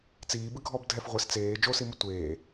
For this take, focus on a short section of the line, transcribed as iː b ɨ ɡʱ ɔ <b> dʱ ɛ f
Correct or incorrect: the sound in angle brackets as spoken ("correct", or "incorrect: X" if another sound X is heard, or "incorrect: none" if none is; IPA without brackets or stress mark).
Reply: correct